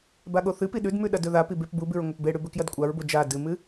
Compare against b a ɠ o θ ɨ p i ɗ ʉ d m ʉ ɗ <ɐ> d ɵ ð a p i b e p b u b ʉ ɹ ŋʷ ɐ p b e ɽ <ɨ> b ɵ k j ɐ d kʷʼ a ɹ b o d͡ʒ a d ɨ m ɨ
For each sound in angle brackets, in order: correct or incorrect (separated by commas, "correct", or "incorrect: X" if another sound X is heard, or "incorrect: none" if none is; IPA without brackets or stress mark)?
correct, incorrect: ʉ